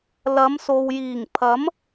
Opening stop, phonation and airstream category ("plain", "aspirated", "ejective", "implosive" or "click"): aspirated